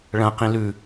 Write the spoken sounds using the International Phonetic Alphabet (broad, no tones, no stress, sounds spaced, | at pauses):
ɭ ɐ̃ q ĩ l ʉ